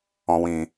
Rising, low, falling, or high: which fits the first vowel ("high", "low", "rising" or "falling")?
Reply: low